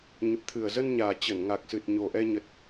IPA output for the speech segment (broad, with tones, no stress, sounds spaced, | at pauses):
ɲ ə˨˩ p̚ t̪ʰ ɨ˨˩ ə̯ z ə˧ n ɲ aː˨˩ t͡ɕ ə˧˩ n ŋ a˨˩ k̚ s ɨ˨˩ t̚ ɲ o˨˩ ʔ ɛ˧ ɲ ə˨˩ t̚